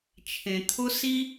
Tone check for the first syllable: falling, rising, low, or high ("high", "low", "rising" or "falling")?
low